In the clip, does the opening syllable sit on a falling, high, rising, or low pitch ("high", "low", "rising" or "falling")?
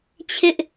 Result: high